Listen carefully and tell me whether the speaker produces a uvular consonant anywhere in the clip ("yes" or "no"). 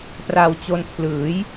no